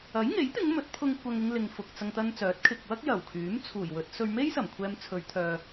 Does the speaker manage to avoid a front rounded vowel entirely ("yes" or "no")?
no